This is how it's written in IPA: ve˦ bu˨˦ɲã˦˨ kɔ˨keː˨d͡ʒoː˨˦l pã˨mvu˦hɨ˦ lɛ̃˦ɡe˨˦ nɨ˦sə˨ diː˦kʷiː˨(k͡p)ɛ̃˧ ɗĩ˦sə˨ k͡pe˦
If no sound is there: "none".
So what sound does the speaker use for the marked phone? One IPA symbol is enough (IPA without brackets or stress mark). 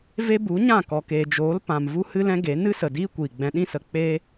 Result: ɡ͡b